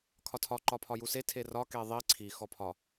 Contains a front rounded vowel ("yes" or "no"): no